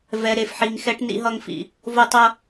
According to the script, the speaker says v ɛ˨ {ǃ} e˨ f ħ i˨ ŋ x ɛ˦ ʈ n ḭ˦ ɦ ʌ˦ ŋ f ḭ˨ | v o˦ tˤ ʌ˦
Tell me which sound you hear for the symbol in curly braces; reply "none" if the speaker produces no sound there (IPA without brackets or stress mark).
ɾ